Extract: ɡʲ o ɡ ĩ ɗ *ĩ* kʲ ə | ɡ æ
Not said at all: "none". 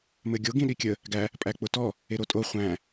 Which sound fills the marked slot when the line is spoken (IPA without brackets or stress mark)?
i